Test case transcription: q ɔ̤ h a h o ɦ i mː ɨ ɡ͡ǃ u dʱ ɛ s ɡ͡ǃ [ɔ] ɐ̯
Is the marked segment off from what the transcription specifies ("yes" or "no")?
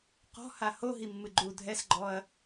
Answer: no